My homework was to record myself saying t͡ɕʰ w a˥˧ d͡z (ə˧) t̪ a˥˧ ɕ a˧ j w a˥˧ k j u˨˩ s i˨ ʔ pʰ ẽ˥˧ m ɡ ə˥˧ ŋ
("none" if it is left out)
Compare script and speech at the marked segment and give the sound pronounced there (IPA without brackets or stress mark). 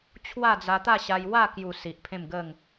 a˧